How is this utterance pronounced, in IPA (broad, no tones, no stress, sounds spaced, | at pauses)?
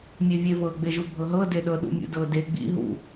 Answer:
mʲ e vʲ e v ɤ ɡ͡b e ʒ u bʱ ɤ ɦ ɤ d e ɗ ɤ ɗ ṵ mʲ ṵ d ɤ d e ɡ͡b ḭ ɦ ṵ